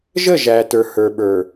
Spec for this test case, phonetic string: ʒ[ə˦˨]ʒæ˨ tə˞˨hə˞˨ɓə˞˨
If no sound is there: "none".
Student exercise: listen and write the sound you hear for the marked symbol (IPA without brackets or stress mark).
ə˦˨